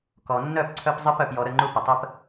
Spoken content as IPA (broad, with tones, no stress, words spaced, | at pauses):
kɔ˨ nːœ˦˨pǀʰœ˧pzˤɨ˧p œ˨pjɔ˨ɾə˦˨ŋ͡ǃu˧ pə˨tˤə˦p